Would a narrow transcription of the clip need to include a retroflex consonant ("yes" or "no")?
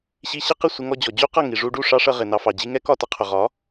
yes